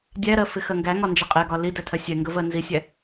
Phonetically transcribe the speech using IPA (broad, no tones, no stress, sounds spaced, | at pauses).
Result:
dʲ æ ɾ ɜ f ɪ x ɜ ŋ ɡ æ ŋ ɒ n d͡ʒ ə qʼ ɛ ɡ ɒ l i d æ tʰ ɜ sʲ ɛ ŋ ɡ ə v ɜ n z i sʲ æ